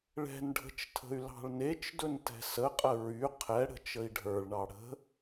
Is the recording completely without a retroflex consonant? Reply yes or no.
no